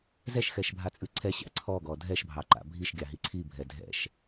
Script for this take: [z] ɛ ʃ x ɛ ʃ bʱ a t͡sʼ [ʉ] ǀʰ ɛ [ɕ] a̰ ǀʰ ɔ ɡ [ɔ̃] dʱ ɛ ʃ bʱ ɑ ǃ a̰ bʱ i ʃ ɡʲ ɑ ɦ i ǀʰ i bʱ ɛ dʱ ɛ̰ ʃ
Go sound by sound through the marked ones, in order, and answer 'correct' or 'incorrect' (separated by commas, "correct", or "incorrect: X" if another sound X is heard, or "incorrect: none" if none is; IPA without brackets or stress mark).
correct, correct, correct, incorrect: ɔ